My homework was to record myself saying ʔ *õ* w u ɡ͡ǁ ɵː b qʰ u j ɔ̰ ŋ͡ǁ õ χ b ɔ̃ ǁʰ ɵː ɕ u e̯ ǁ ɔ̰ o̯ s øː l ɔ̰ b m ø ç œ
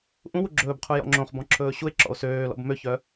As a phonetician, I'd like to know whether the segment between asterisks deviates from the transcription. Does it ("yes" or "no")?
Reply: yes